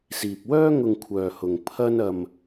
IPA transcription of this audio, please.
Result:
s iː˨ p̚ w œː˥ ŋ ʊ˧ ŋ kʷʰ œː˧ h ʊ˧ ŋ pʰ ɐ˥ n ɐ˧ m

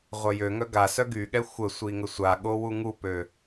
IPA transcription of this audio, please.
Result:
ʁʷ œ j ø ŋ œ ɡ a s œ ɡ y ɠ ɛ xʷ ə sʷ i ŋ ə sʷ a ɠ o w u ŋ u p ø

